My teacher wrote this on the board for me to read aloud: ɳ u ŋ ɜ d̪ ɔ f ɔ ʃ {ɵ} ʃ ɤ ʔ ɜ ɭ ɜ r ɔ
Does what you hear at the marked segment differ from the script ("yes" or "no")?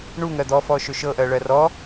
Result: no